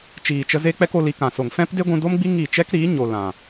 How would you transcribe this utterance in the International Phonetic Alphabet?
t͡ʃ iː˨ t͡ʃ ə˧ z e˦ k͡p ɛ˦ k o˧ l i˧ k ã˨ s o˨ ŋ f ɛ̃˦ p d e˦ ɡʷ ũ˧ d o˦ m ɡ͡b i˦ ŋ i˦˨ t͡ʃ ɛ˦ k ɾ iː˨˦ ɲ o˨ l ã˨

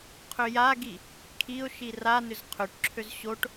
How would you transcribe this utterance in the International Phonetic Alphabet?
qʰ ø j a ɡ i | kʰ i ʊ̯ ʃ i r a n ʏ z qʰ ø ʈ ǁʰ ø z ɕ o ʈ

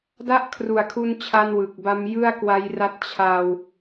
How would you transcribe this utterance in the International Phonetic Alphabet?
d a˥˩ ʔ kʰ r u˨˩ a̯ kʰ u˧ n t͡ɕʰ a˧ n w ɯ˨˩ k̚ b a˦˥ m j ɯ˥˩ a̯ k w a˦˥ j r a˦˥ t̚ t͡ɕʰ a˧ w

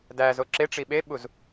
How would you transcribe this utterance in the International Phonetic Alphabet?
d æ z o ǁ e ʈ͡ʂ i ɓ e ɓ u z

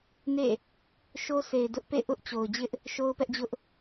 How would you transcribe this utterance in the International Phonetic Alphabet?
n ḛ˦˨ | ʃ o˦ s e˨ ɪ̯ d ʊ˦ ʔ p ḛ˦˨ ʔ ʊ˦ ʔ t͡ɕ o˨ ʊ̯ d͡ʑ ɪ˦ ʔ | ʃ o˦ ʊ̯ p ɛ˦ ʔ d͡ʑ ʊ˦ ʔ

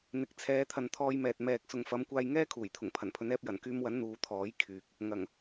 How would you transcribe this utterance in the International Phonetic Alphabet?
n̪ ɪ˨ k̚ t͡sʰ ɛː˨˧ t̪ʰ ɐ˨ n t̪ʰ ɔː˧ j m ɛː˨ t̚ m ɛː˨ k̚ s ʊ˨ ŋ f ɐ˨˧ m kʷ aː˧ j ŋ ɛː˥ kʰ uː˨˩ j t̪ʰ ʊ˨˩ ŋ pʰ ɐ˨˩ n pʰ ɵ˨˧ n ɛː˧ p̚ j ɐ˨˩ n k yː˧ m w ɐ˨˥ n n̪ uː˨˧ t̪ʰ ɔː˨˥ j kʰ yː˨ k̚ | ŋ ɐ˨˩ ŋ

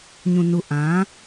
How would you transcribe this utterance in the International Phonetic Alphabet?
ɲ ũ˨ n u˨ ʔ ã˨˦

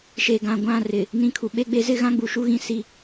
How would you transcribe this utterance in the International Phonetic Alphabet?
ʃ e˨ ɡ ã˨ ɡʷ ã˦˨ r ɪ˨ | n ĩ˦ kʰ u˨ ɓ e˦ ɡ͡b e˦ z ɪ˦ ɣ ã˦ ɡ͡b u˨ ʃ u˦ ɣ ĩ˦ s i˦

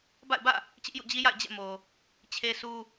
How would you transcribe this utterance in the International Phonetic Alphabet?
b a̰˦˨ ɪ̯ b ä̰˦˨ | t͡ɕ ɪ˦ ʔ j ṵ˦˨ d͡ʑ i˦ j a̰˦˨ ɪ̯ d͡ʑ ɛ̰˦˨ m o˨ | t͡ɕʰ e˦ s u˦

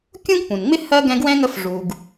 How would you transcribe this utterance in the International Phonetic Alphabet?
kʲ ũ˥ ɡ p ũ˩ n ŋ͡m ɪ˥ h ɜ˥ ɡ ɛ̃˦ ɡ w ɛ̃˥ ŋ ə˦ f ʐ u˩ ɡ

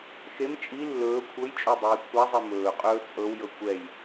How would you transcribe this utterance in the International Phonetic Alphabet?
x e m t͡ʃʼ i lː ɵː kʷʰ ɤ j t͡ʃʼ o dˤ iː kʷʰ a zˤ ɛ m ɵː qʼ ɵː t͡sʼ ɤ w j ɤ kʷ ɛ j

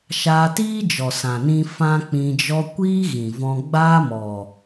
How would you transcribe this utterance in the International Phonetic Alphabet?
ʃ aː˧ t iː˦ d͡ʒ ɔ˨ s ã˨ n ĩ˦ f ã˦ k͡p ĩ˧ d͡ʒ ɔ˦ kʷ iː˦ ɣ ĩ˨ v ɔ̃˧ ɡ͡b aː˦ m ɔ˨

